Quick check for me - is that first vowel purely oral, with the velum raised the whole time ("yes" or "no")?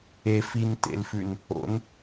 yes